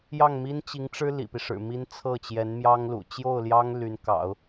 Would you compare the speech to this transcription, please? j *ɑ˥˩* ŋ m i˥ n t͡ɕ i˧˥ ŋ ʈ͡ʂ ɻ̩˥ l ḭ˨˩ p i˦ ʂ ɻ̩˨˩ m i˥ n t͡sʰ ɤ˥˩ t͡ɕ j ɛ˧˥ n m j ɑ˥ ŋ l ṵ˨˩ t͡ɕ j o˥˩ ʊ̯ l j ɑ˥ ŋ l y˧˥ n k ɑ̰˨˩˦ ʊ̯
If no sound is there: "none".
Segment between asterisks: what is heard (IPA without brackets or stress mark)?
ɑ˥˩